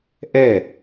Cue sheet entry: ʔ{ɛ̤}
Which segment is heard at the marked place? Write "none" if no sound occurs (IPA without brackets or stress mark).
ɛ